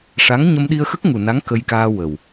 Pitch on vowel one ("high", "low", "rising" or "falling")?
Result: rising